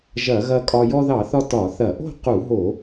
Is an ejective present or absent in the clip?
present